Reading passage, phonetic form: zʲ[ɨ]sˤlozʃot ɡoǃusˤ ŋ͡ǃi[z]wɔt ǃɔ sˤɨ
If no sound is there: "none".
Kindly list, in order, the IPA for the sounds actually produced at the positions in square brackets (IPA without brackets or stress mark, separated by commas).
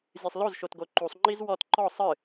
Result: ɨ, z